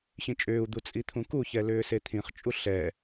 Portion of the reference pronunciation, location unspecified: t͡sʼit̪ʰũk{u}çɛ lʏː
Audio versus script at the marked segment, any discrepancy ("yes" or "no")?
no